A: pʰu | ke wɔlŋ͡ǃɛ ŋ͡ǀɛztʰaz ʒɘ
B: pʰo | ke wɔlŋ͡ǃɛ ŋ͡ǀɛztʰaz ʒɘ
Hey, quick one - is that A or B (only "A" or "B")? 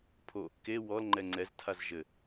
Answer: B